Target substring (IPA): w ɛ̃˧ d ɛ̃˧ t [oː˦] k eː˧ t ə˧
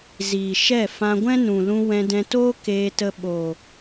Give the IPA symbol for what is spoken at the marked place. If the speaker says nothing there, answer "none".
oː˦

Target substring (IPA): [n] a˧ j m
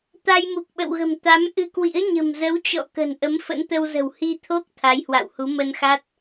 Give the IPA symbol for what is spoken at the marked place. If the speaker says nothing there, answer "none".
t̪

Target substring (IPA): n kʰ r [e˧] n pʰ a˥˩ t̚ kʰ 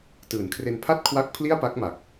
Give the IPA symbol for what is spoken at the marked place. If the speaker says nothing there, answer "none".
e˧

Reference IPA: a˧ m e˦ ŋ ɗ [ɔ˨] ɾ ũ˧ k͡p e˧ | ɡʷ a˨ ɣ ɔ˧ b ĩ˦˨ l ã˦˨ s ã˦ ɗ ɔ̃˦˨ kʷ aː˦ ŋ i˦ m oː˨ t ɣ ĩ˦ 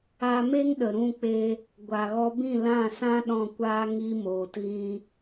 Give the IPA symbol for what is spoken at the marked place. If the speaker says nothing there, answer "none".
ə˨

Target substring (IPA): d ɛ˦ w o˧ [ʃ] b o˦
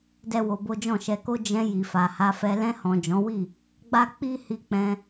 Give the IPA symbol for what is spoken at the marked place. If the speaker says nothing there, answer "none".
none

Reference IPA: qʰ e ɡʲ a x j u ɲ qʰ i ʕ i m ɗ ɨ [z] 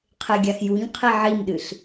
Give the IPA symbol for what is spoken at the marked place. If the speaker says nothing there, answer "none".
ɬ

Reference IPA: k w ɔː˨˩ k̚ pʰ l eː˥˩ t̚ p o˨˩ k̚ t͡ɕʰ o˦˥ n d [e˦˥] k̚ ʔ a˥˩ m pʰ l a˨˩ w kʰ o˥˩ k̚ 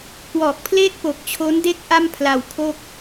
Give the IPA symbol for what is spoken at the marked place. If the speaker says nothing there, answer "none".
e˦˥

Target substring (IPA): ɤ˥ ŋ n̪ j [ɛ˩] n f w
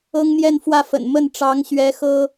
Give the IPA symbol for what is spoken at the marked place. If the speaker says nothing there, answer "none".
ɛ˥˧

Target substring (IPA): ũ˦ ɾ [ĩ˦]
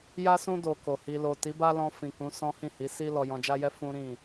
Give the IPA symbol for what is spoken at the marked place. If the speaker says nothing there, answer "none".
ĩ˦˨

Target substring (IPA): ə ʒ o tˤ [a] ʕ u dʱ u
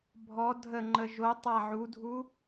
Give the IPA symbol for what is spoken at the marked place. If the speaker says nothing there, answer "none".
a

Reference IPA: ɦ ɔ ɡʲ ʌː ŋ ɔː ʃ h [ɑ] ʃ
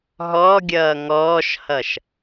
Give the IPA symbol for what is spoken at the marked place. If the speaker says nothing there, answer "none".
ʌ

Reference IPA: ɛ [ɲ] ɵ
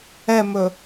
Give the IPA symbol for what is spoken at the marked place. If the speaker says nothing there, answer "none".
m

